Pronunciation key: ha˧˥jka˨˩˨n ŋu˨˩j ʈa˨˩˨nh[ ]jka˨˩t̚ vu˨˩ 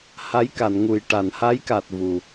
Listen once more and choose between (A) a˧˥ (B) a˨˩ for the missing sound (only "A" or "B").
A